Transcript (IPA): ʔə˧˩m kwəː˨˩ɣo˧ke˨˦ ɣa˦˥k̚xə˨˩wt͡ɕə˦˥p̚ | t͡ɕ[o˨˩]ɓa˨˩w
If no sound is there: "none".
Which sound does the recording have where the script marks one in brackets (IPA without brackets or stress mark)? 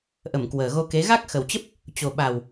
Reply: o˨˩